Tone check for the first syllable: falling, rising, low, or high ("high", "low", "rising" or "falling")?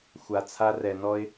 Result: low